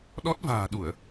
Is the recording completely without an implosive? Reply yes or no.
no